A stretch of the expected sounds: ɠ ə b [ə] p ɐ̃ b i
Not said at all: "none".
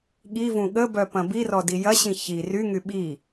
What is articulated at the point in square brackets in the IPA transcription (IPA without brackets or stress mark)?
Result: œ